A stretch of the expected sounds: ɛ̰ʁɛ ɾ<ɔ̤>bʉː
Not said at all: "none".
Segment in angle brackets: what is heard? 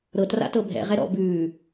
ɔ̰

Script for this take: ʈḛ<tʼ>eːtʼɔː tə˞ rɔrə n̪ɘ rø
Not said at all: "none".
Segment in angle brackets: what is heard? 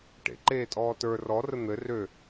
ǃ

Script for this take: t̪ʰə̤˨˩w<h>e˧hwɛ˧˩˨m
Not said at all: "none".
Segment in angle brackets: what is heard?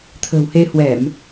h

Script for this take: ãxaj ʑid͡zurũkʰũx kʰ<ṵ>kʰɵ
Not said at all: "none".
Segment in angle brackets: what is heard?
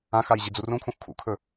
ṵ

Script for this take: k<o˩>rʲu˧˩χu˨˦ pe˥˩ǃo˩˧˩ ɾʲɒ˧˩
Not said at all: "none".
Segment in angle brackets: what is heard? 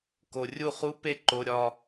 o˩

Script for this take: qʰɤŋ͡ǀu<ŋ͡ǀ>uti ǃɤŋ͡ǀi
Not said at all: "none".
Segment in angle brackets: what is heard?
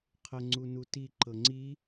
n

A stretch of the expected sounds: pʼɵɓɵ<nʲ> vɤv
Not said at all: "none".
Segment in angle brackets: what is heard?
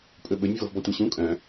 nʲ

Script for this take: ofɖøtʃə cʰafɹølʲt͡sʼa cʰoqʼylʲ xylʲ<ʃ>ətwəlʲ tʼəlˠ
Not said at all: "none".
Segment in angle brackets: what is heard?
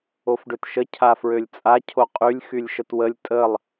ʃ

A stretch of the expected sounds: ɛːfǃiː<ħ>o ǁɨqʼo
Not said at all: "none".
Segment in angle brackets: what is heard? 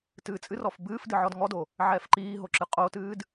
ɦ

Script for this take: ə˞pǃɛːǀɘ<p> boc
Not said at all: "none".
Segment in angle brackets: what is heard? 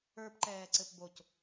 p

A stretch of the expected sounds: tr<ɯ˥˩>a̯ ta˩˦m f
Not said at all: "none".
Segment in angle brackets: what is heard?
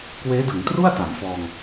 u˥˩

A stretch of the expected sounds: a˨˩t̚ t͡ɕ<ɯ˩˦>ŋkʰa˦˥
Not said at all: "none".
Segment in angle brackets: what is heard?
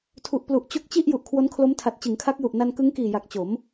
ɯ˩˦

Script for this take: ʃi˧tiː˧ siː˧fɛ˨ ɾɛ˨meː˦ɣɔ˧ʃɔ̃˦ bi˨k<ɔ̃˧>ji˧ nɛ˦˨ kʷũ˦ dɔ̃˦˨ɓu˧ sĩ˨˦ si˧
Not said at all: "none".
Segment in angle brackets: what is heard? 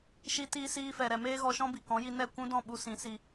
ɔ̃˨˦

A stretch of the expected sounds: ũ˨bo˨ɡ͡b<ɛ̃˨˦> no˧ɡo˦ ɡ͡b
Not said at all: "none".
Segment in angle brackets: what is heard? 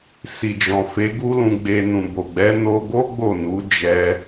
ɛ˨˦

